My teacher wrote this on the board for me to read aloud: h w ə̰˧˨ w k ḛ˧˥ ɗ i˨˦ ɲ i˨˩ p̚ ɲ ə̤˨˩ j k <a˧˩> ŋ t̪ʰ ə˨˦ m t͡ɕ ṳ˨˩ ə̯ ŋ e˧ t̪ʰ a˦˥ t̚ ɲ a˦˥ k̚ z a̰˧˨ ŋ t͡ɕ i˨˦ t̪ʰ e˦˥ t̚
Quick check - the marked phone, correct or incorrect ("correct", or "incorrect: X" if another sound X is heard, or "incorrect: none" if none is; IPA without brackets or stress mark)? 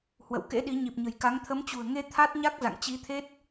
incorrect: a˨˦